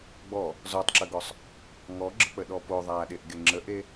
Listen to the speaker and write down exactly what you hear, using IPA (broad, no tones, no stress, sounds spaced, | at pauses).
ɡ͡b ɔ | z ɔ tˤ ǁ ə ɡ ɔ sˤ | ŋ ɔ ɡ͡ǁ ə k͡p ə ɗ ɔ p o ðˤ aː ɗ e ʔ ɡ e ŋ͡ǁ ə ʔ e